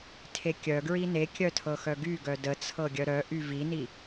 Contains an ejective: no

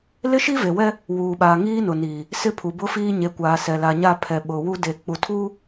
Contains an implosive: yes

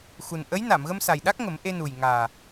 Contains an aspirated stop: no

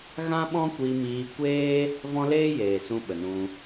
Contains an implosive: yes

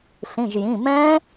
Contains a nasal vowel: yes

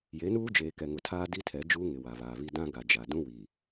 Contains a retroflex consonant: no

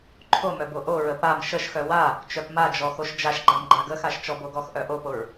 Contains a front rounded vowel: yes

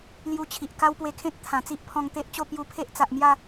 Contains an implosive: no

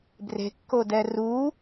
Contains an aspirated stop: no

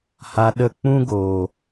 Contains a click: no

